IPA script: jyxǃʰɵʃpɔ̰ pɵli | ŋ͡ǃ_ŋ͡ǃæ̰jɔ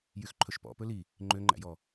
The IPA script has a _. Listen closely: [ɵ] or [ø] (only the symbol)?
ø